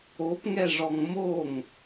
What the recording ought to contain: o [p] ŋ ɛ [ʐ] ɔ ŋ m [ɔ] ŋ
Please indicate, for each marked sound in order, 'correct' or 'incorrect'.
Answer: correct, correct, incorrect: o

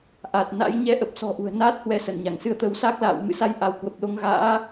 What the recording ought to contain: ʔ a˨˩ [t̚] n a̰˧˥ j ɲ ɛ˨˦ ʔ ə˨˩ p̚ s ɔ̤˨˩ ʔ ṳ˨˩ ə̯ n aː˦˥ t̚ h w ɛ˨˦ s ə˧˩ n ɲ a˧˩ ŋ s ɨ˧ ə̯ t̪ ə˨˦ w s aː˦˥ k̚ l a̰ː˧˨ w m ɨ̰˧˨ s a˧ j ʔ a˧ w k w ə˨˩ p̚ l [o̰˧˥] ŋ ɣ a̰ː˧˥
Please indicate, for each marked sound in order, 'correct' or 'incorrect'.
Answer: correct, incorrect: o˧

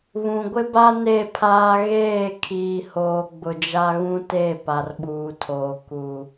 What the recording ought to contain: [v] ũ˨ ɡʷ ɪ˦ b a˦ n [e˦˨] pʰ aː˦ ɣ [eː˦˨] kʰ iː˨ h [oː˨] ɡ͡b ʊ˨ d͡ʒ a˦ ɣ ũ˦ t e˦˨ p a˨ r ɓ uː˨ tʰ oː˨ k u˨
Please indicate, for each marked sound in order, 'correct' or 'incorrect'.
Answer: incorrect: β, correct, correct, correct

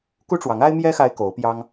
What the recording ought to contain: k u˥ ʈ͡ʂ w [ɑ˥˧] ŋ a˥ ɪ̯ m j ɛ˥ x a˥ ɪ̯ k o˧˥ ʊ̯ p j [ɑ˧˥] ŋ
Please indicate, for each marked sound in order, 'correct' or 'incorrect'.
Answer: incorrect: ɑ˧˥, incorrect: ɑ˥

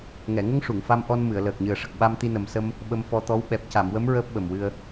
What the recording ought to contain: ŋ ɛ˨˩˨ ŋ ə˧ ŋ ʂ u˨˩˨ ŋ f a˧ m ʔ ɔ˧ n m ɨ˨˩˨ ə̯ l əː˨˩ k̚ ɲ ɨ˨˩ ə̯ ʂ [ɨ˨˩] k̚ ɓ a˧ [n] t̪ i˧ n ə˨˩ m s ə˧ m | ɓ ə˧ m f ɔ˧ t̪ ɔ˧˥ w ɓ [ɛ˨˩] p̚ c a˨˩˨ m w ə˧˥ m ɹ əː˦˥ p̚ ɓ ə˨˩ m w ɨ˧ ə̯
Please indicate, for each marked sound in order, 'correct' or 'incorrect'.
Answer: incorrect: ə˨˩, incorrect: m, correct

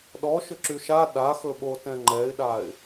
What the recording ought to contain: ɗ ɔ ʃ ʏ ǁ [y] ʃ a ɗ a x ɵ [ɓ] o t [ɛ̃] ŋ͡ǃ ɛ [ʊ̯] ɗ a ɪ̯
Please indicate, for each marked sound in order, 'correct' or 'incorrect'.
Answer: correct, correct, correct, incorrect: ɪ̯

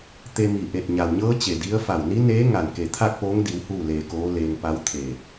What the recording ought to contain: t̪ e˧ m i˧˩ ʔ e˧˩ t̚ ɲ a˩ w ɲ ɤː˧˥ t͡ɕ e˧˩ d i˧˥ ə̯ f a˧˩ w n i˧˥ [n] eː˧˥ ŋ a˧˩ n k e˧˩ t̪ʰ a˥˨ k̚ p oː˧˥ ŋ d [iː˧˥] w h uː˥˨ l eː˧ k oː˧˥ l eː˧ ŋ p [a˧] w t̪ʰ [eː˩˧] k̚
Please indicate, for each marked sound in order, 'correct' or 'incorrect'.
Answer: correct, incorrect: i˧˥, incorrect: a˧˥, incorrect: eː˧˩

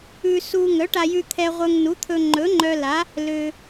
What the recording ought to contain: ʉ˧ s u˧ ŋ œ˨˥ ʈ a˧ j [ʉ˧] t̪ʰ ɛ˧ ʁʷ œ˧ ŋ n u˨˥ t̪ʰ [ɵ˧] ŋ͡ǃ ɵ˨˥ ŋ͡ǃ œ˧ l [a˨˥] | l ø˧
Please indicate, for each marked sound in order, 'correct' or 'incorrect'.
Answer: correct, correct, correct

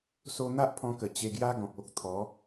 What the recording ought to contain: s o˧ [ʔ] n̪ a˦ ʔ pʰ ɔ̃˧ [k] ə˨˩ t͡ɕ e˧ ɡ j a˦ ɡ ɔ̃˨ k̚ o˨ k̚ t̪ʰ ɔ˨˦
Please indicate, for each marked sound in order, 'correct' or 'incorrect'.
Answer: incorrect: none, correct

